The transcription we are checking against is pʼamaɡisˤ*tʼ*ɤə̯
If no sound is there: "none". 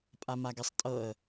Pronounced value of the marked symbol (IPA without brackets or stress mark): tʼ